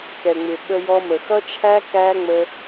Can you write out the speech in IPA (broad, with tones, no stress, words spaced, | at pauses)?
kɛ˨ŋ͡mɪ˨ ɓə˧jɔ˧mə˨ xʌ˦t͡ʃʰæ˦ kæ˦ŋ͡mə˧